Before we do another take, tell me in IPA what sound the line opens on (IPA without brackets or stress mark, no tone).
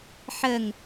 ħ